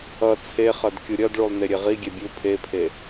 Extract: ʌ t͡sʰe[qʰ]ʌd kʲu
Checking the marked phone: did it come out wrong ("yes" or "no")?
yes